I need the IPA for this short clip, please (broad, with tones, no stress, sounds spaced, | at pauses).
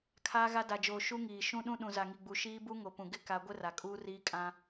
kʰ aː˦ ɣ a˦ d a˨ d͡ʒ oː˨ ʃ u˦ ŋ iː˨ ʃ ũ˦ ɗ ũ˦ ɗ ũ˨ z a˨ ŋ i˨ ɡ͡b u˨ ʃ iː˦ b u˦ ŋ o˨ p ũ˨ ɡ ɪ˦ k a˦ ɡʷ ɪ˦ r a˨ kʼ uː˦ r iː˦ kʼ ã˦